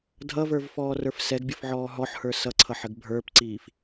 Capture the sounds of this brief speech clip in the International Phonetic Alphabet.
dʱ ʌ v ə˞ v f ɔː r ə˞ f s ɛ ɡ bʲ ə f ʕ ɔː ɦ ɔ ħ h ə˞ s ʌ ǀʰ ʌ ħ ə ɡ bʱ ə˞ p ǀ iː f

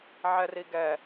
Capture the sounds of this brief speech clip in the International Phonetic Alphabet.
ʕ ɛ r i ɡ ɛ

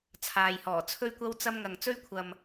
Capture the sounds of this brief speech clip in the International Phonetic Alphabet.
t͡sʰ aː˨ j h ɔː˨˩ t͡sʰ ɵ˥ ɥ kʷ ɐ˥ w t͡s ɐ˥ m ŋ ɐ˨ ŋ t͡s ɵ˥ ɥ kʷʰ ɐ˨ m

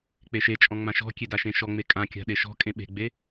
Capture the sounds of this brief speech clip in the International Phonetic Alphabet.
k͡p e ʃ e t͡ʃʼ ɔ̃ ŋ͡m ã ʃ ɔ̤ kʲ e d a ʃ ẽ ʃ ɔ ŋ͡m e kʼ ã kʲ a̤ ɗ e ʃ ɔ̤ kʼ ẽ ɓ e̤ ɡ͡b e

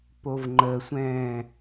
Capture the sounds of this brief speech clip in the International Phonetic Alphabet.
p o v ŋ͡ǃ ə sʷ ɛ̃ː

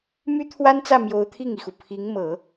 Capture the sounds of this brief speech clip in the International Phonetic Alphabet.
m y˥ t̪ʰ w a˥ n t͡s ä˥˩ m j o˧˥ ʊ̯ t̪ʰ i˥˩ ŋ i˩ x u˩ pʰ i˧˥ ŋ m ɤ˨˩˦

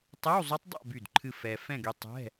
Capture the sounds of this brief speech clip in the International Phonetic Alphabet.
tˤ ɛ˧˥˧ w zˤ o˦˥ tˤ dˤ a̰˥˧ b y˥˩ d ǃʰ ɨ˥˧ f ɛ˧ f ɛ̃˥˧ ɡ y˧ tˤ ɛ̤˧˥˧

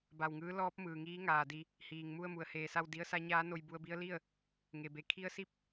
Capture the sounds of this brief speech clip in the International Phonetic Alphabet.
b a˧˩ w ŋ ɯː˧˥ l ɔː˧˥ p̚ m ɯː˩ ŋ iː˧˥ ŋ aː˩ d i˧ | h iː˩ ŋ m u˥˨ ə̯ m u˩ ə̯ h eː˧˩ s a˥˨ w d i˧˥ ə̯ s a˧˥ ɲ aː˧˥ n o˧ j b u˧ ə̯ b i˧˥ ə̯ l i˥˨ ə̯ | ŋ e˩ b e˩˧ kʰ i˧˥ ə̯ s i˥˨ p̚

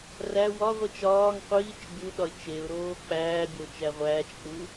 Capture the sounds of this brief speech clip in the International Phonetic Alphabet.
r æ w ɒ ʁʷ i t͡ʃ ɒː ŋ qʷ iː t͡ʃ bʲ u ɗ ɒ ɪ̯ t͡ʃ e ʊ̯ ɾ oː k͡p æː bʲ o t͡ʃ æ ʁʷ æː t͡ʃ k͡p u

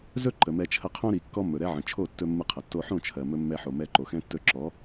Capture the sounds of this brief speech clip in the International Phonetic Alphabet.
z ɵ˦ ǃ ə˨ m ɛ˧ t͡ʃʰ ə˧ qʰ õ˦ ɾ i˨ kː ɔ˦ mː ɵ˨ ɾ ɛ˦ ʕ ə̃˨ t͡ʃʰ o˦˨ tː ɵ˧ mː ɨ˧ qʰ ə˨ tː o˧ ħ õ˦˨ t͡ʃʰ ɜ˨ m ɵ˧ mː ɛ˧ ħ o˨ m ɛ˧ ǃ o˨ x ɛ̃˦ tː ɵ˧ ǁ ɔ˨˦

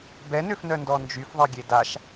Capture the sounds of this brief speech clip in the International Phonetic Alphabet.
b ɛ n ø f n œ n d ɔ n d͡ʒ y f ðˤ e ɡʲ e d a ʃ

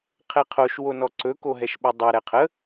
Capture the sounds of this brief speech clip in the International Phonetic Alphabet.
qʰ ɛ qʰ o ʃ w o n ɔ ǀ ɵ k o ɦ ɛ ʃ ɓ u dˤ ɛ ɾ ɛ qʰ ə

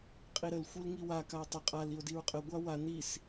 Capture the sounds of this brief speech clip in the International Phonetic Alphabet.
qʼ i ɾ ə l xʷ i l ŋ i w a k a o̯ tˤ ə qʼ a l i o̯ d i ɹ qʼ ə ɡʷ a w a n i s

